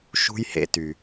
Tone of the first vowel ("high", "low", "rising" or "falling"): high